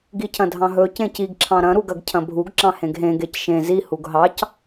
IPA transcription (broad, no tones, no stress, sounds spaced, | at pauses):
ɡ i cʰ ɐ̃ dʱ ɑ̃ ɦ ɵ c ẽ c i ɡ ǁʰ ɑ̃ ɾ ɐ̃ ɾ u ɡ ɐ ɡ cʰ ɐ̃ bʱ u ɡ ǁ ɑ̃ h ẽ ɡ ɦ ẽ ɡ e c ʃ ẽ z i h u ɡ ɦ ɑ c